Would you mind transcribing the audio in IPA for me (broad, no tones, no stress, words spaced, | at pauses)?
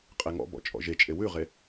qʼeŋɔ̰bɔ̰ t͡ʃʼɔ̰ʒet͡ʃʼe wʉʁe